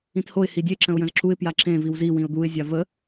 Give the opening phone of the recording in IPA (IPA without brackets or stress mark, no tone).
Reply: ĩ